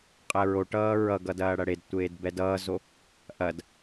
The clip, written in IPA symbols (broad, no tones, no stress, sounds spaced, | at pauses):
qʼ ɛ ɹ o ʈ ʌː ɹ ʌ ɡ ʌ d ɐː ɽ ɐ ɽ e d tʷ eː d b ɛ d ʌː z o | ʔ ɐ d